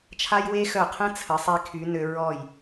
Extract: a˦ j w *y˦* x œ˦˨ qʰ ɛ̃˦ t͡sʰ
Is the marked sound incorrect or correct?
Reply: incorrect